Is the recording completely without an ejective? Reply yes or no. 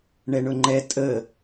no